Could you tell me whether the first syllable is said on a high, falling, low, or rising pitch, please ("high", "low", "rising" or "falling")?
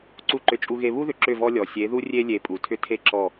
falling